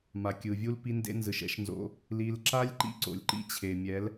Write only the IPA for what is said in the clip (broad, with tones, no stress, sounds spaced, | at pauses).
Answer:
m a˨ kʲ ɯ˨ vʲ u˦ l p i˧ n d ḛ˧ n z ɯ˨ ʃ ɛ̰˦ ʃ n z o̰˧ | l i˧ l ǁ a˦ lʲ ǃ ḭ˦ ǀ o̰˨ lʲ ǃ ḭ˦ t͡ɕʰ e˨ mʲ ɛ˨˦ l